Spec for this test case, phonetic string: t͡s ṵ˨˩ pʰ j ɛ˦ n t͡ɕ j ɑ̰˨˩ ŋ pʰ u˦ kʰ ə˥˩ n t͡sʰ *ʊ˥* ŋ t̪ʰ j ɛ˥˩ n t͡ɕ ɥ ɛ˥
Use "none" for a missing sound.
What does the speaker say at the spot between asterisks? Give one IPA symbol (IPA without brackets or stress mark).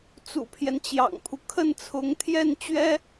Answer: ʊ˧˥